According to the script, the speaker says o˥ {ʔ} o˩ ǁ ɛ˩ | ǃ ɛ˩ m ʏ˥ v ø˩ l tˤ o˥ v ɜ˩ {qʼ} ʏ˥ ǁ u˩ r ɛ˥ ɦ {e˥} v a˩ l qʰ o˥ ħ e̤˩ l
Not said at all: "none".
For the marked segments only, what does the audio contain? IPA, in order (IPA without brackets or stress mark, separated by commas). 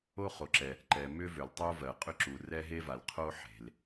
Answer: χ, qʼ, e˥